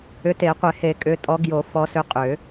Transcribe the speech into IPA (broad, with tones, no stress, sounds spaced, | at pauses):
ʏ˨˦ t e˨˩˦ qʷ e˨˩˦ h e˨˩˦ kʼ ʏ˨˦ tʼ ɔ˨˦ ɡ j o˨˩˦ f ɔ˨˦ s ʏ˨˦ qʼ ʏ˨˩˦